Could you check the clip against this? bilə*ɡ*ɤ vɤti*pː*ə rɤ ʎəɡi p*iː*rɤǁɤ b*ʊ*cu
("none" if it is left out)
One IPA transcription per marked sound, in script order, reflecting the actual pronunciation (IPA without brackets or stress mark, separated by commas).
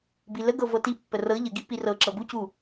ɡ, pː, i, u